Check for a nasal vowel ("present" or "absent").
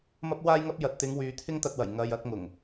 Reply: absent